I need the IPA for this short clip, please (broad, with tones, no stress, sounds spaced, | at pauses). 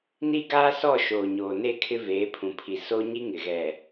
n i˦ ɡ aː˦ s ɔ˦˨ ʃ oː˨ ɲ oː˨ n e˦˨ kʰ ɪ˦ v eː˨˦ pʰ ũ˨ pʰ i˨ s o˦ ɲ i˦ ŋ ɪ˨ ɣ ɛ˨